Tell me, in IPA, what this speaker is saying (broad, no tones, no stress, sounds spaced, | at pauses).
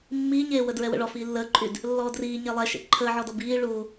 mː iː ɲ eː w ə d ɹ ɛ w ə̰ ɭ ɔ f iː lː əː ǃʼ y d | lː ɔː d r iː ɲ ɛ lˠ ɛ ʃ ḛ ǃʰ əː ʕ ɔ d ɔ b iː ɭ u